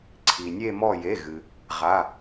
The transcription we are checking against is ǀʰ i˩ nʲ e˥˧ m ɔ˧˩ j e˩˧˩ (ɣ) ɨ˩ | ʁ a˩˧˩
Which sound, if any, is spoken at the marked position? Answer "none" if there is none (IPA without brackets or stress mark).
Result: ɣ